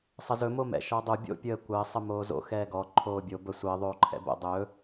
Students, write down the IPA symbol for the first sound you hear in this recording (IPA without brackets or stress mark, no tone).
sˤ